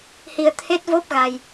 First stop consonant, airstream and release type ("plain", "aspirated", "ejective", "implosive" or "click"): aspirated